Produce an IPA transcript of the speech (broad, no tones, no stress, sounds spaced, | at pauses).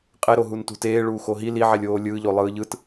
qʼ e ɾ o ɦ u n t ṳ t eː ɭ uː x o ɦ i l i ʕ e lʲ oː lʲ ɯː ʎ o lˠ ɯː ʎ ɯ t